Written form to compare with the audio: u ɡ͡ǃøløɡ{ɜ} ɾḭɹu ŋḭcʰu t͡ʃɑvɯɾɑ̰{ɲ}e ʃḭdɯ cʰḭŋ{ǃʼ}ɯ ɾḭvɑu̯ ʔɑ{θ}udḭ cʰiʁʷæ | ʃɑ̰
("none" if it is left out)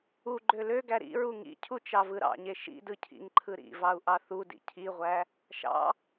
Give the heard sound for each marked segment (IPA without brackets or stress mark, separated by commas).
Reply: æ, ɲ, ǃʰ, θ